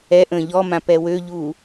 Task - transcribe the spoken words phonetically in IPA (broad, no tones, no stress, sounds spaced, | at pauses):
ɛ ʔ ə̃ː ʎ ɔ m ã p ɛ w ø ʎ uː